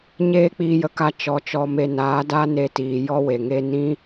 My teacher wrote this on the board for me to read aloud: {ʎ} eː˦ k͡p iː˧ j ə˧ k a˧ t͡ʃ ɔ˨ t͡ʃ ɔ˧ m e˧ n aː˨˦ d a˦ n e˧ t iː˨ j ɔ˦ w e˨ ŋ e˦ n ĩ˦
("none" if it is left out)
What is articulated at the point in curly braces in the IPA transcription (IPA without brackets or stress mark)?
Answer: ɲ